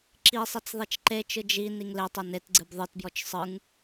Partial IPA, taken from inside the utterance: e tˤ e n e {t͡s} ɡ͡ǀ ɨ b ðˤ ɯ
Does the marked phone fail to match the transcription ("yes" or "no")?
yes